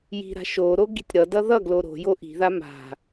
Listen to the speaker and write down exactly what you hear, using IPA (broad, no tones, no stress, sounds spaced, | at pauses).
j i̤ ɾ a̤ ʃ o ɾ o ɡ i̤ tʲ ɾ ʌ d ʌ ð ʌ ɡ l o ɾ o̤ j o ʔ i̤ ð a m a̤